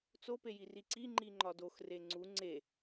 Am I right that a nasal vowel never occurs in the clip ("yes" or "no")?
yes